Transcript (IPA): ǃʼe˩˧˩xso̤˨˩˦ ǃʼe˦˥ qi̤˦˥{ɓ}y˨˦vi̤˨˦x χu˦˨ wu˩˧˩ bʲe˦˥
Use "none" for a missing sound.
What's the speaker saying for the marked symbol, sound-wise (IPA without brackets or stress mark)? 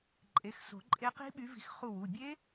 ɓ